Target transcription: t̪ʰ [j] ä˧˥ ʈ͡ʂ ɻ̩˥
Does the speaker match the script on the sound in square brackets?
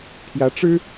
yes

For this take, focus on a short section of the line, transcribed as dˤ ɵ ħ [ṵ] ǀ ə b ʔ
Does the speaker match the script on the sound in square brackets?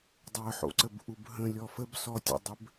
no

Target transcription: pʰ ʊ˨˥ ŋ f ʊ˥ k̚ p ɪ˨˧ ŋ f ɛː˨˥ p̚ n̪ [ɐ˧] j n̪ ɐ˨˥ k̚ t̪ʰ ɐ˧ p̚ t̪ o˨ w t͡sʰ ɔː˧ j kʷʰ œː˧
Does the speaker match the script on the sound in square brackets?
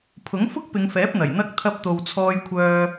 no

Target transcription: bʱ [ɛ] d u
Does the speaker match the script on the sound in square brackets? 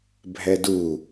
yes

